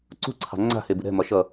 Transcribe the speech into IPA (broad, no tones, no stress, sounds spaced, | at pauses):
ǀ ṳ ǀʰ ɑ̤ ŋ͡ǀ a̤ h e b ɨ ɾ ɛ̤ m ɒ ʃ ʌ